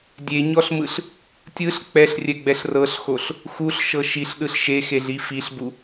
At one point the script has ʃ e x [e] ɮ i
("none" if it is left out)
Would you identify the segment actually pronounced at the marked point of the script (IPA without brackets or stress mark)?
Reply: e